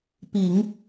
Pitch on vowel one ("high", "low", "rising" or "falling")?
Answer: low